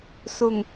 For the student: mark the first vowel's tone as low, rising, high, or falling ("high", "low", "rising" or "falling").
low